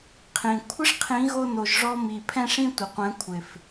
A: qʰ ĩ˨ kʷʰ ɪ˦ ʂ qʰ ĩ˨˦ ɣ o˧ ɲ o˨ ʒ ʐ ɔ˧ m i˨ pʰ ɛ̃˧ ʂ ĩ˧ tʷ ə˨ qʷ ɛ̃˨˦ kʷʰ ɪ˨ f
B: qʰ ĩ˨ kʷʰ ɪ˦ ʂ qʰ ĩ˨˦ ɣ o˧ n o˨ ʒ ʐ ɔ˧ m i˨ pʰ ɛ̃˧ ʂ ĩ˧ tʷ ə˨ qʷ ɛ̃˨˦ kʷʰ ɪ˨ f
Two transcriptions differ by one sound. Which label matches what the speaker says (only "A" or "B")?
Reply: B